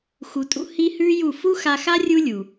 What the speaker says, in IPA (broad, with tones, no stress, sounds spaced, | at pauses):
x u˧ tʼ ṵ˦ h i˦ h ʉː˦ j u˦˨ f u˦ x a˧ x a˦ rʲ u˦ lʲ u˨